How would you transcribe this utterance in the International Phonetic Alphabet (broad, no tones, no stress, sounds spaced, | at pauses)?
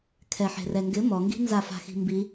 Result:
kʰ ɛ ħ e̤ r ɛ ŋ ɡ ɪ m ɔ ŋ ɡ i̤ n z a f a̤ x i̤ m b i